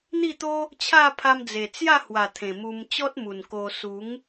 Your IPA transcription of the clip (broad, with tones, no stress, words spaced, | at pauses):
n̪i˥˧t̪o˦ | t͡ɕʰa˥˧ pʰa˧md͡ze˨˩ t͡sja˥˧hwa˨˩ t̪ʰẽ˨˩mu˧m t͡ɕɔ˦t̚mu˨˩n ko˧ su˨˦ŋ